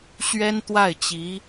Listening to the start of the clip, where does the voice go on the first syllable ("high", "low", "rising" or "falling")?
high